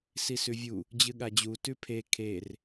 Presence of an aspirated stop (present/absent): present